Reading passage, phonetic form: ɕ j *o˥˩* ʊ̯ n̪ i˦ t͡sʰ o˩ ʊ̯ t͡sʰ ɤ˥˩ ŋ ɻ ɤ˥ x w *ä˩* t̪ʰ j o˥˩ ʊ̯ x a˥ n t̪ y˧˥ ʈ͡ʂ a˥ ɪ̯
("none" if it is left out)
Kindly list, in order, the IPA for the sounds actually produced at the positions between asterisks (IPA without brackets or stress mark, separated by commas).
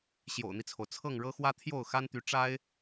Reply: o̰˨˩, ä˥